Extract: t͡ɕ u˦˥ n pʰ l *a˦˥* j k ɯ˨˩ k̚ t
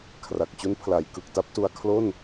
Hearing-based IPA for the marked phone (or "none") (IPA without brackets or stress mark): a˩˦